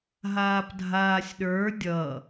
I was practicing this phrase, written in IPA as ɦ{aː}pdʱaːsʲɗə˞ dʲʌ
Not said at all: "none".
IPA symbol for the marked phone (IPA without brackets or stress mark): aː